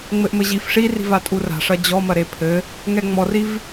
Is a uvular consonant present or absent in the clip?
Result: absent